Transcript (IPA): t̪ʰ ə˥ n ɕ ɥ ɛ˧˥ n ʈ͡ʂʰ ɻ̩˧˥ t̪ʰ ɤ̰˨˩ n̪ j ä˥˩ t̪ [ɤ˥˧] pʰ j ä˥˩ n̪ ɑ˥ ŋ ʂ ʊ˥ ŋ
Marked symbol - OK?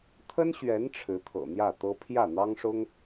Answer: no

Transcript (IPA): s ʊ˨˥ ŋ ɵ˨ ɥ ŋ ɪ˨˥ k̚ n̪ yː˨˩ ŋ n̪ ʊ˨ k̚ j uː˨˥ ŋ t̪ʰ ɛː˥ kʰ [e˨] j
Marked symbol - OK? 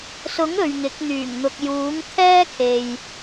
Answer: yes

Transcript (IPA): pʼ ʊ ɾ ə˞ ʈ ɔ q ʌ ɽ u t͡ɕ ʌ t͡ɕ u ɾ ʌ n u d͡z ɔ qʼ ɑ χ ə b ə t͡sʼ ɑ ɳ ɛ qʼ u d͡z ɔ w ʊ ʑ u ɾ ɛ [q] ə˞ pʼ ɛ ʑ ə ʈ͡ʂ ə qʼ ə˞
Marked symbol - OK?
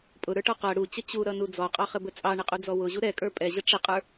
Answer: no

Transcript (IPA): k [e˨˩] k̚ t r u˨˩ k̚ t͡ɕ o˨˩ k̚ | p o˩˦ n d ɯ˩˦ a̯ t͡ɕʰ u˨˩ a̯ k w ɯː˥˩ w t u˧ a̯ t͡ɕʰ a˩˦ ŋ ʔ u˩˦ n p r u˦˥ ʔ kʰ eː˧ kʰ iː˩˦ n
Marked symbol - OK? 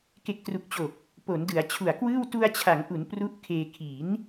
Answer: yes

